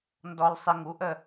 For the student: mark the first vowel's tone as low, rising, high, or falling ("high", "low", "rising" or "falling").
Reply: low